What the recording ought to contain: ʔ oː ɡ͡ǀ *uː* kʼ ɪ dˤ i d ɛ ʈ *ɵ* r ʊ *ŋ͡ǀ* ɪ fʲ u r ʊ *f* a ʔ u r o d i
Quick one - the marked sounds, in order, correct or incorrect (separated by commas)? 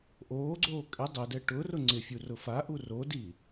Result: incorrect, incorrect, correct, correct